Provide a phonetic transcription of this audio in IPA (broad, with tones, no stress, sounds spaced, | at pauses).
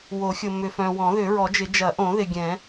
w o˨˩˦ xʲ ʊ˨ m ʏ˨ f œ̃˨ w ɔ̃˨˩˦ ð ʏ˨˩˦ ɹ ɔ˨˩˦ d͡ʒ ɪ˨˩˦ d͡ʒ ɐ˨˩˦ ʔ õ˨˩˦ ð ɪ˨ ɡʲ ɛ̃˨˩˦